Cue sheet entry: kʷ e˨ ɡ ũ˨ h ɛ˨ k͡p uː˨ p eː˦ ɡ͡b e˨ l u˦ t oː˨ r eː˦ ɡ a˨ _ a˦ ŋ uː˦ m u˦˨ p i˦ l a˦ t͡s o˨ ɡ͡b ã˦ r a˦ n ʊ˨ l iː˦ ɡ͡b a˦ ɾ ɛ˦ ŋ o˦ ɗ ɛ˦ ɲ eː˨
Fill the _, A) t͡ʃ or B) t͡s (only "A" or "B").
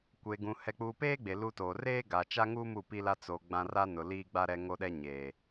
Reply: A